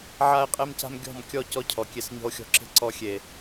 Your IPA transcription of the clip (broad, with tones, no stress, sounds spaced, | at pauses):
ʕ a˦ e̯ qʼ e˦ m c a̤˦ m ɡʲ ɔ̤˦˨ m kʲ ɔ˦˨ c ɔ˧ cʰ ɔ˨ kʲ e˧ s ɲ ɔ̤˧ o̯ xʲ ɔ̤˧ ǁ e̤˦ ǀ ɔ˧ xʲ e˨